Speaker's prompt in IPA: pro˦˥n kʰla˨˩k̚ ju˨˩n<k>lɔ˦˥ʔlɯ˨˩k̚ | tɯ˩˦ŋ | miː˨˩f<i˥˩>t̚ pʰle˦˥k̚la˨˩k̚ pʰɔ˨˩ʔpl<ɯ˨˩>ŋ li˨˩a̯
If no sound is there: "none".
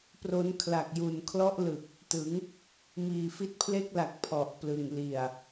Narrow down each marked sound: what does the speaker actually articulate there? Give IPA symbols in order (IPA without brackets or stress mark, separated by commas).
kʰ, i˦˥, ɯ˨˩